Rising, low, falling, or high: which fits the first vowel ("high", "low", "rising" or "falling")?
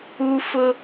high